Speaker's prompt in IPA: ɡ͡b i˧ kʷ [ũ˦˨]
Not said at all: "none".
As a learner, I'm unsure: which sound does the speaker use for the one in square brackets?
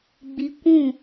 ũ˦˨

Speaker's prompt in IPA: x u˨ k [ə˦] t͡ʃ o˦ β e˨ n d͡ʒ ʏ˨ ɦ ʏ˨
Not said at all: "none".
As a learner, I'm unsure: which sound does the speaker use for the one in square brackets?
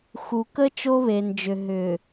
ə˦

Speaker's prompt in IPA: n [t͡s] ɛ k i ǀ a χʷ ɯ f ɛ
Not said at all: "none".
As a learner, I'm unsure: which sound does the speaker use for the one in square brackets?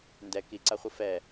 d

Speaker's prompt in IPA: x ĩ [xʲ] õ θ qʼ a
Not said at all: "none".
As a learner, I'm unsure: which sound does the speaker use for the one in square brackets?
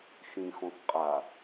x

